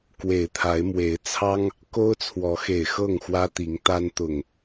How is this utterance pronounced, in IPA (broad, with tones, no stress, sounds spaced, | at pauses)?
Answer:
k w e˨˩ ɪ̯ t̪ʰ a˨˦ ɪ̯ m w e˨˦ ɪ̯ t͡sʰ ɑ˦ ŋ | k o˦ ʊ̯ t͡sʰ w ɔ˨˦ x e˨˩ ɪ̯ x ɤ˥˨ ŋ x w ä˦ t̪ i˨˦ ŋ t̪ a˦ n t̪ ʊ˨˩ ŋ